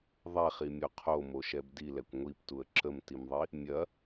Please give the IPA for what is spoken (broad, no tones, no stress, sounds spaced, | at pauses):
ðˤ ɛ χ i mʲ o qʰ o m o ʃ ɛ b d i l ɛ kʷ ŋʷ i p t u ə̯ ǁ ə m t i m ðˤ i | mʲ ɐ